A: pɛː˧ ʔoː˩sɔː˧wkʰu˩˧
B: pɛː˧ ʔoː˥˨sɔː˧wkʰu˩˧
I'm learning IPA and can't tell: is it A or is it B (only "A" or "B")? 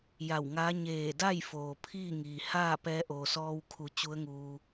A